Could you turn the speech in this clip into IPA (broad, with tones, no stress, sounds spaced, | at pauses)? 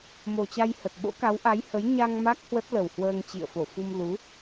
m o˨˩ t͡ɕ a˧ j h ə˨˩ t̚ ɓ o̰˧˥ k a˨˦ w ʔ a˨˦ j h ə˨˦ j ɲ a˧ ŋ m a˦˥ k̚ h w ə˦˥ t̚ l ə˨˩ w h w əː˧ ŋ t͡ɕ ḭ˧˨ ə̯ f o˧˩ f u˧ m l u˨˦